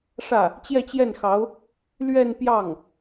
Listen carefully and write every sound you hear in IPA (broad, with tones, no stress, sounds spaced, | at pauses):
ʂ ä˥˩ | t͡ɕ j ɛ˥˧ t͡ɕ j ɛ˥˩ n x ɑ˧˥ ʊ̯ | l ɥ ɛ˥˧ n p j ɑ˥˩ ŋ